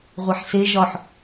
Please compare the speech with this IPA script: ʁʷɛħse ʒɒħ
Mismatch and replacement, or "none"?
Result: none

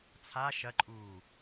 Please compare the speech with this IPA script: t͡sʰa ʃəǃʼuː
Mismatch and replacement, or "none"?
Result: ə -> ɐ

